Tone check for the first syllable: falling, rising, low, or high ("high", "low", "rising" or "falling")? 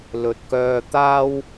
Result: low